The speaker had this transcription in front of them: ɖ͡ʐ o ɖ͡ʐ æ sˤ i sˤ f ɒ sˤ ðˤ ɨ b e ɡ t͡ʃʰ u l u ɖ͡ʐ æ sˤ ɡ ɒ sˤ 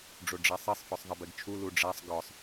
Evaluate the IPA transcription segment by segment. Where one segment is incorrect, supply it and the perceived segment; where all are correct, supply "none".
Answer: ɨ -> e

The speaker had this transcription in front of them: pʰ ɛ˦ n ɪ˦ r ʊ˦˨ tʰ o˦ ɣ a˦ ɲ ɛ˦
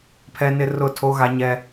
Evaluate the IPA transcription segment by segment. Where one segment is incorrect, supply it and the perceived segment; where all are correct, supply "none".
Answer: none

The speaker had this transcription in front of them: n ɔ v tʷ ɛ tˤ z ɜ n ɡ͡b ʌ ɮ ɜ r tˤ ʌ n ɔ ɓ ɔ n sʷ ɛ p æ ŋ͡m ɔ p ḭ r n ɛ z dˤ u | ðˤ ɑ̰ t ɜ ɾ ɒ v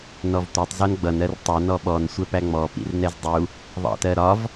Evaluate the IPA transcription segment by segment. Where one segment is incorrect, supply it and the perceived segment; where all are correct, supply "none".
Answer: ɮ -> n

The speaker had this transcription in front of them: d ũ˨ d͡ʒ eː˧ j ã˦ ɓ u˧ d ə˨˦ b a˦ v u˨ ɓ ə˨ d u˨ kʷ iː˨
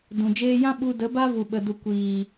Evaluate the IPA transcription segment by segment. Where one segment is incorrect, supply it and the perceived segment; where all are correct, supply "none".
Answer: none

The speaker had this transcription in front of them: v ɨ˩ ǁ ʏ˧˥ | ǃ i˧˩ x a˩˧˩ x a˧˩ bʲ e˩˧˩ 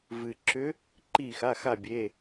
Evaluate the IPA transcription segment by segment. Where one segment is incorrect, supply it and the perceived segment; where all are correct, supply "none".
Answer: none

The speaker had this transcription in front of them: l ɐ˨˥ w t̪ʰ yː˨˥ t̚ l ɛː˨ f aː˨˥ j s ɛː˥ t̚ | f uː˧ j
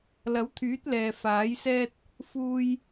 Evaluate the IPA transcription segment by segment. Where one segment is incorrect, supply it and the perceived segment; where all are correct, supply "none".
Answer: none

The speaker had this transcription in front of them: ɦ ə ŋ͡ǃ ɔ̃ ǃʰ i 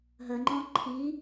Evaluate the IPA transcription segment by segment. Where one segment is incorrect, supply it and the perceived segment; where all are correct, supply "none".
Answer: none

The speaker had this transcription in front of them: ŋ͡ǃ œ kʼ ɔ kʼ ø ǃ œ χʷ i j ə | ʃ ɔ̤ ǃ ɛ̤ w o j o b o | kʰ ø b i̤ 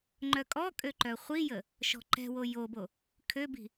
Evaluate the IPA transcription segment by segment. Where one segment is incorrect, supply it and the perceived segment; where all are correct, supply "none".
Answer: none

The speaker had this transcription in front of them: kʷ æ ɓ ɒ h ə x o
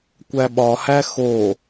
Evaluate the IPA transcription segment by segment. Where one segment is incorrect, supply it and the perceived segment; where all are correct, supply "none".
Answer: ə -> æ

